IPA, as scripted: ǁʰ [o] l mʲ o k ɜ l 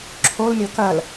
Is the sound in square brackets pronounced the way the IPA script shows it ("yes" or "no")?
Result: yes